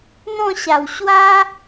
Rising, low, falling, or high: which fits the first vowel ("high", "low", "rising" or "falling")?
falling